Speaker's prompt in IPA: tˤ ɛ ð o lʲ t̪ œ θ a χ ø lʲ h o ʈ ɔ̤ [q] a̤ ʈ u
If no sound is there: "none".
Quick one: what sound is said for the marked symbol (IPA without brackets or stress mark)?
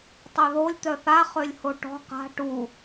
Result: q